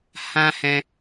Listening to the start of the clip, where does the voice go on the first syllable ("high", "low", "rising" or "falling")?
high